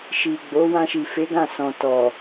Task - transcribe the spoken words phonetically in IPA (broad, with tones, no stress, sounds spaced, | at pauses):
ʃ i˨ ɡ͡b o˨˦ w ã˧ ʃ i˨ f e˨˦ ɡ ã˦˨ s ɔ̃˨ t ɔ˨